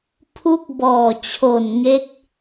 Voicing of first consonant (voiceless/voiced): voiceless